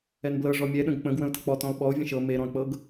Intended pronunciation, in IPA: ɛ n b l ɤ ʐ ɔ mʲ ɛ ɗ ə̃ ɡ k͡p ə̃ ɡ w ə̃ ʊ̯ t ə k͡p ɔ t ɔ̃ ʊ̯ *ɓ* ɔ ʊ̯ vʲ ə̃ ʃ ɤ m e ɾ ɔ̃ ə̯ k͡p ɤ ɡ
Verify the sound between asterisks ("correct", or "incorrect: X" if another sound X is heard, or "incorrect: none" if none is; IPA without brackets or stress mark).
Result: correct